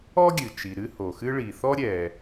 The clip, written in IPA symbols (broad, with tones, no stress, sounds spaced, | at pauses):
ɔ˥ ɡʲ ɨ˩ t͡ʃ i˩ ɾ ɨ˥ h o˩ x ɨ˥ ɭ i˩ θ ɔ˥ ɾʲ ɛ˩